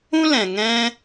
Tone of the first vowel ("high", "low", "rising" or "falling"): high